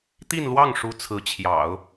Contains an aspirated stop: yes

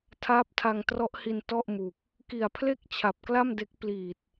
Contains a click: no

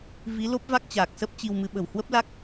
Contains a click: no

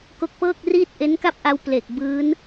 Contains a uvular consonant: no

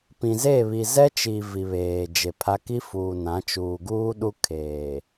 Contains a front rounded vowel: no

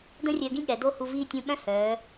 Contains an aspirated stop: no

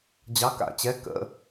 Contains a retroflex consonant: no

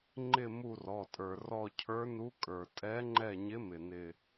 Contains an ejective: yes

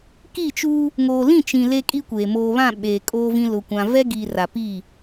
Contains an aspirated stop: no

